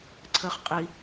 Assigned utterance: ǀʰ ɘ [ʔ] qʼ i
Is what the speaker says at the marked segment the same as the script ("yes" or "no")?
no